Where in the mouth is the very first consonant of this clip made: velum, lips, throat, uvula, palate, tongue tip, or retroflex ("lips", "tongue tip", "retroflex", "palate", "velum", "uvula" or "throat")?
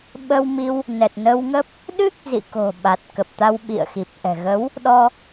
lips